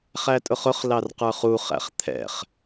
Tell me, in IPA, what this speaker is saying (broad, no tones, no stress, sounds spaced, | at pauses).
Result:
χ æ tʼ ʊ χ ʊ χ l ɑ r q ə˞ χ u χ æ̰ χ t̪ʰ ɛ̰ χ